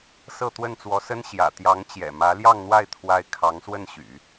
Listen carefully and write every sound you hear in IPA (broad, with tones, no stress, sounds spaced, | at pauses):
s ɤ˥˧ t̪ w ə˥˩ n t͡s w ɔ˧˥ s ə˥ n ɕ j ä̰˨˩ t̪ j ɑ˧˥ ŋ t͡ɕ j ɛ̰˨˩ m ä˧˥ l j ɑ˥˧ ŋ n̪ w a˥˩ ɪ̯ t̪ʰ w a˥ ɪ̯ kʰ ɑ˧˥ ŋ s w ə˥˩ n ɕ y̰˨˩˦